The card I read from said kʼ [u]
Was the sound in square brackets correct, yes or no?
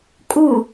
yes